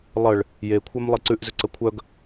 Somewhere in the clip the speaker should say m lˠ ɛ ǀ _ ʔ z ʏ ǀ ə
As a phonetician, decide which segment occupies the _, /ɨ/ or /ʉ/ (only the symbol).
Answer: ʉ